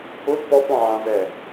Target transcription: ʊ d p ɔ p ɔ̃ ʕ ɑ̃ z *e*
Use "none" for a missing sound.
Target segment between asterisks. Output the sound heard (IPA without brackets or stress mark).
ɛ